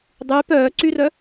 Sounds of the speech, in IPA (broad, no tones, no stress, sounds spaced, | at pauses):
dˤ yː p œː ǀ y r œ